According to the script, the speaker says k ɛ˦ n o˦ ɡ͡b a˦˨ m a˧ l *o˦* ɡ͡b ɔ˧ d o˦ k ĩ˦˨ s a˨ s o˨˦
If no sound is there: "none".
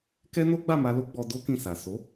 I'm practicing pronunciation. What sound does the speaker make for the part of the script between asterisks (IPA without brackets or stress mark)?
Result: o˦